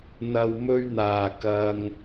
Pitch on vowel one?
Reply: low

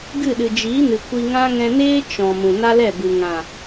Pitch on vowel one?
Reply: falling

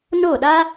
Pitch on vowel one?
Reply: falling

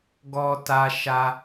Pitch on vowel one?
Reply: high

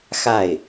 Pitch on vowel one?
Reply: falling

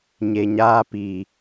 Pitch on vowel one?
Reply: low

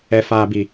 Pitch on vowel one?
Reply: low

